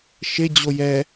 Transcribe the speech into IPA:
ʃ e d͡ʑ o j ɛ

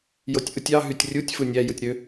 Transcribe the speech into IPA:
j o tʲ ʔ ɯ tʲ ɑ ɦ y tʲ rʲ u tʲ f ɯ nʲ æ j ɯ tʲ ɾ ø

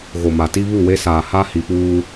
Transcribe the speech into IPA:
ɣ o˨ m a˨ t i˦ β u˦˨ w e˦ s aː˨ h a˦ h i˨ p uː˦

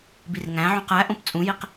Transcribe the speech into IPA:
b i r ŋ æ̃ ʕ ũ q æ ʔ õ p t͡sʼ ũ j i q

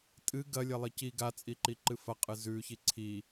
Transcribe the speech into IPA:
tʼ ɨ ɡ ɐ lʲ ɐ lˠ i c i ɡ a t͡sʼ i ǃ i ǃ ɨ f ɐ qʼ ɨ z ʉ ç i ǀʰ i

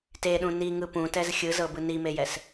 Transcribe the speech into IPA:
t e ɗ ũ n i ŋ ɯ p ũ t ɛ z xʲ ɯ z ɤ b ɯ n i m e j ɛ s

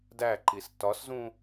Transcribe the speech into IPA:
d æ ǃ i s t ɒ s z ũ

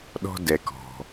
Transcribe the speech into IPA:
ɗ ɔ̤˦ d ɛ˨ k ɔ̤˩

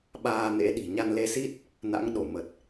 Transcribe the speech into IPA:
ɓ aː˧ n ḛ˧˥ ɗ i̤˨˩ ɲ a˧ n l e˨˦ s i˦˥ t̚ | n a̰˧˥ ŋ ɗ o˧˩ m ə˨˩ t̚

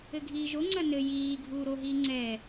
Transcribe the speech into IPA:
ɘ ɡʱ iː ʒ o ŋ͡ǀ ɐ n ɘ j iː ɡʱ uː ɾ o ɦ iː ŋ͡ǀ ɛ

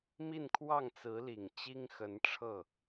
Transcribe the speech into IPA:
m i˥˧ n kʰ w ɑ˥˩ ŋ t͡s ɹ̩˧˥ l i˨˩ ŋ t͡ɕ i˥ ŋ x ə˧˥ n ʈ͡ʂʰ ɤ˥˩

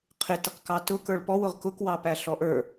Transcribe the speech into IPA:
qʰ ɪ t ɪ q k ɑ t ʊ k ə˞ ɭ p ɔ w ʊ ʁ k ʊ k w ɑ p æ ɬ ɔ ʔ ə˞

